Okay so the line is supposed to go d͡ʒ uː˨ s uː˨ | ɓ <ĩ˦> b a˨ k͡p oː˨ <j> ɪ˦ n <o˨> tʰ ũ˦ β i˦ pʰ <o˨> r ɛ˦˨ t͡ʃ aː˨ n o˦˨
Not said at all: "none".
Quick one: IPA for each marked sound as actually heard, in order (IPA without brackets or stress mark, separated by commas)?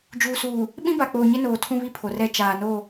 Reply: ĩ˦, ɲ, oː˨, o˨